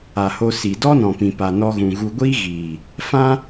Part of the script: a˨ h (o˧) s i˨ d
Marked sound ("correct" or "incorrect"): correct